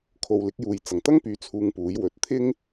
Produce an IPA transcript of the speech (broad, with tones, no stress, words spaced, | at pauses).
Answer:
kʰo˨wlɪ˨˥k̚juː˨j t͡sɐ˨˩ŋt̪ɐ˥ŋpyː˨˥ t͡sʰuː˧ŋpuː˨˥j wɵ˨t̚t̪ʰɪ˥ŋ